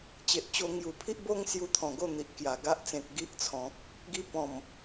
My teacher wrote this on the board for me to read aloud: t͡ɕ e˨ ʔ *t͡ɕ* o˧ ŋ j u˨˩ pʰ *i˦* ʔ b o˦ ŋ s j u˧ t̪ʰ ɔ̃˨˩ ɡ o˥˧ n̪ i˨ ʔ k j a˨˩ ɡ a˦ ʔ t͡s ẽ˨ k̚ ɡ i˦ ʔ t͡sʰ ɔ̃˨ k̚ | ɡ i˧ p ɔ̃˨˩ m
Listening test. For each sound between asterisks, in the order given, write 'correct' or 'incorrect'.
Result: correct, correct

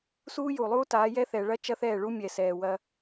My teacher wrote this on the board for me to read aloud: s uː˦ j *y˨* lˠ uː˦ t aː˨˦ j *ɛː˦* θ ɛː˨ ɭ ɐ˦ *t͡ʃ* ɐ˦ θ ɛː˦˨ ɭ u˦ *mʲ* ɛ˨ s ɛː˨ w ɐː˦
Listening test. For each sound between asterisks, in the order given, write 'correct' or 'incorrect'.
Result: incorrect: u˨, incorrect: ɛ˦, correct, correct

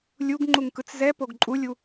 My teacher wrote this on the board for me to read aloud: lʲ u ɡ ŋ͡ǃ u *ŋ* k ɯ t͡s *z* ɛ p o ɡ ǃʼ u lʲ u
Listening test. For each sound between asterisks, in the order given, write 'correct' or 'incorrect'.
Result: correct, correct

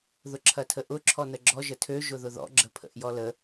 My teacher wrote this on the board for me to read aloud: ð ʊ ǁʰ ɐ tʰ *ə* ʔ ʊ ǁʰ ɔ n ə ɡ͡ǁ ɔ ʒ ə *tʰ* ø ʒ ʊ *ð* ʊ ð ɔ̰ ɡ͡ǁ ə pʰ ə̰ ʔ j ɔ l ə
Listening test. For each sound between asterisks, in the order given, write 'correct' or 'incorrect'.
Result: correct, correct, correct

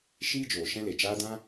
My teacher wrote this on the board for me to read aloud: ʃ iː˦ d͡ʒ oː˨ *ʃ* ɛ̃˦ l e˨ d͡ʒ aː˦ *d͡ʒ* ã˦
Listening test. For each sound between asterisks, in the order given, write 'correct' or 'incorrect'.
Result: correct, incorrect: d

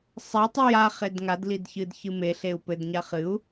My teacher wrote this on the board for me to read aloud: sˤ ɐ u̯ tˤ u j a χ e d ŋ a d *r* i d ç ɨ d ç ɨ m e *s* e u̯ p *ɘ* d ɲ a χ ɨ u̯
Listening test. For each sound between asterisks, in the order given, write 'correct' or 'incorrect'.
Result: incorrect: l, incorrect: ɬ, correct

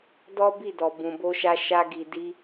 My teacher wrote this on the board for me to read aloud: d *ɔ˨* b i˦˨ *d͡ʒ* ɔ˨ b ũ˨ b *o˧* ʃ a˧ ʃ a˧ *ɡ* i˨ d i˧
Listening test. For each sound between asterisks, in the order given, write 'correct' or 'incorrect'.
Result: incorrect: ɔ˦, incorrect: d, correct, correct

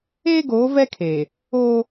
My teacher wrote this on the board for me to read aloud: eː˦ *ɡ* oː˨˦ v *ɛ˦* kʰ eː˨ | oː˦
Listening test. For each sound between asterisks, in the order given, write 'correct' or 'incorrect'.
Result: correct, correct

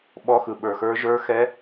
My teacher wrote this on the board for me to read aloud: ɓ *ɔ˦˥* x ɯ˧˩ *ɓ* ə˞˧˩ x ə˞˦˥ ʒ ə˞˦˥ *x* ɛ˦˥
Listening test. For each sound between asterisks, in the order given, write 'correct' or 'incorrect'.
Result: correct, correct, correct

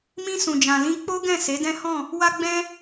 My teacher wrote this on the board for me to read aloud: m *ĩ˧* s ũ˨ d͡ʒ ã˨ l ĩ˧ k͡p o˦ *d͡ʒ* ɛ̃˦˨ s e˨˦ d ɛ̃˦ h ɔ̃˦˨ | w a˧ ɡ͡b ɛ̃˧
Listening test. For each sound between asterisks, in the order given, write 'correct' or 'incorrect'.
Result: correct, incorrect: ɡ

